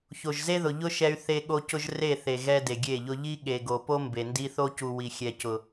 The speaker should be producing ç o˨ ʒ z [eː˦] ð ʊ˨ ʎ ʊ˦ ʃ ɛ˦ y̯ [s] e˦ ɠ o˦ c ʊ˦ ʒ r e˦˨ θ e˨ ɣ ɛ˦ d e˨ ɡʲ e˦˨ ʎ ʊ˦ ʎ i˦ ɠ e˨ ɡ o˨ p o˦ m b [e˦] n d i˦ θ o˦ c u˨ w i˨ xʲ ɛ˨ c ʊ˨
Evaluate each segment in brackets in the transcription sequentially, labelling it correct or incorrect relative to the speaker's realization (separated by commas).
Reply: incorrect, incorrect, incorrect